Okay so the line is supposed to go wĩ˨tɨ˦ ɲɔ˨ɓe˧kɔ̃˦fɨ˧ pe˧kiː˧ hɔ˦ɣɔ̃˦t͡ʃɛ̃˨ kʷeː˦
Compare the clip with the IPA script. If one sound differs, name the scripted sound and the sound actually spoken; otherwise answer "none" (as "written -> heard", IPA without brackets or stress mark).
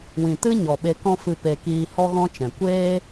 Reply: none